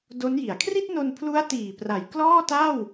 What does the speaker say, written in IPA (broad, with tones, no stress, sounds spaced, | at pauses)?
d o˦˥ n j i˩˦ a̯ kʰ r i˥˩ t̚ n o˧ n pʰ l u˦˥ a̯ t iː˨˩ p r a˩˦ j k l ɔː˥˩ t a˥˩ w